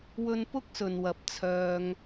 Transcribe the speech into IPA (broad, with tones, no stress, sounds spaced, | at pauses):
w ɵ˧ n p ʊ˥ k̚ s ɵ˨ n w ɐ˨˥ p̚ t͡sʰ œː˧ ŋ